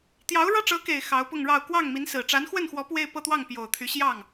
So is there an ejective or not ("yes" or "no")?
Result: no